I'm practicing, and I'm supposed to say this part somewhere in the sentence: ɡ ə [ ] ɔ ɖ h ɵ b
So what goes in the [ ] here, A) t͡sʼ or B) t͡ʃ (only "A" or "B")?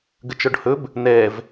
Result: B